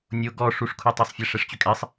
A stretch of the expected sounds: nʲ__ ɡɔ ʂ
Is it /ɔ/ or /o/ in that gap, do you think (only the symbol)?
o